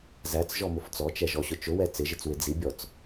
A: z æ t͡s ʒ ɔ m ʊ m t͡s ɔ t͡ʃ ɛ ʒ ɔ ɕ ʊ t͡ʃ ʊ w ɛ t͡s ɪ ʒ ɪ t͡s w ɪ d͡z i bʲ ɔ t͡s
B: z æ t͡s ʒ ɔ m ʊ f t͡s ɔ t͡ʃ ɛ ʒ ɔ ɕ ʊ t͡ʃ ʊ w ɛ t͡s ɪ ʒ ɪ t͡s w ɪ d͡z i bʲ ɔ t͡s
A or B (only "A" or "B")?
B